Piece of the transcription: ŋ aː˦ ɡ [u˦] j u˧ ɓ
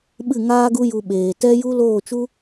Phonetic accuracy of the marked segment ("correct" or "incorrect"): correct